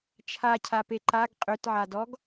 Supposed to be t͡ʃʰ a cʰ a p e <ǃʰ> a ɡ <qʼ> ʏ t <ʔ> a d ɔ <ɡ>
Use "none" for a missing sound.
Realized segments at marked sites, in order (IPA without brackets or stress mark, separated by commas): ǃ, qʼ, ʕ, ɡ